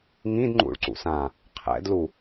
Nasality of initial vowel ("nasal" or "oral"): nasal